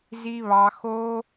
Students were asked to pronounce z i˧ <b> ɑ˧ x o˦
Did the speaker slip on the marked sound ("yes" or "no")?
yes